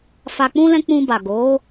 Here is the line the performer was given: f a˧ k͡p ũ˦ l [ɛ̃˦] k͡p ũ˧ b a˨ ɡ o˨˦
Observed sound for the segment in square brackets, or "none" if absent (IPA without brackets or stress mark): ɛ̃˦